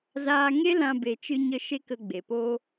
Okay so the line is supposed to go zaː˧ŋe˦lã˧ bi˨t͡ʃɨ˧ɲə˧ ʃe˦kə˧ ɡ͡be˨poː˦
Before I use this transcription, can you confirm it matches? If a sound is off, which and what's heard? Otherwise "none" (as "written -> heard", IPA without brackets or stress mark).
i˨ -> e˨